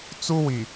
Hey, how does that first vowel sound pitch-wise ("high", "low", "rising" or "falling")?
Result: high